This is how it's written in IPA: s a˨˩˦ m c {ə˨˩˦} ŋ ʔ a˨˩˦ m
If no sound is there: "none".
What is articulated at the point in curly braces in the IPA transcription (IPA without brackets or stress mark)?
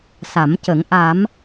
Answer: ə˨˩˦